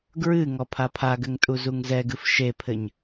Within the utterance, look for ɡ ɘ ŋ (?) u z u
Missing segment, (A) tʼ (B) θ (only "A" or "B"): A